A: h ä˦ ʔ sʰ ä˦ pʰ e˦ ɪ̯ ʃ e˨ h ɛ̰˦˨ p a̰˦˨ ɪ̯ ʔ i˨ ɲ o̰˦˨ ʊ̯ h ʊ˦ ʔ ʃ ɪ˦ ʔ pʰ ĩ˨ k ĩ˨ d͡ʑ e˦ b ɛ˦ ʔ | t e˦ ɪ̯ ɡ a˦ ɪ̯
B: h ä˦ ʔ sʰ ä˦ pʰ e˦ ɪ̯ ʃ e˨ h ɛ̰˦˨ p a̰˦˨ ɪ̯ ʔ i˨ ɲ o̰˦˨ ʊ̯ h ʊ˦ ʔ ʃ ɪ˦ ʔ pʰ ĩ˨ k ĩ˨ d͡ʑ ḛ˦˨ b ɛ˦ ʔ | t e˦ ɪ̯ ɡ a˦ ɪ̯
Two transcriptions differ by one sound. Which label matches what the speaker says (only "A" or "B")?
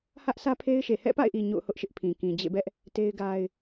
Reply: B